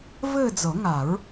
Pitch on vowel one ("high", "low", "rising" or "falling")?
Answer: falling